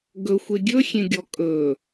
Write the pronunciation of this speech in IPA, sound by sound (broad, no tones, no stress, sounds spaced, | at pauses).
ɡ ɵ xʷ e ɡʲ ɵ xʲ ẽ ɡʲ ɔ kʼ ɵ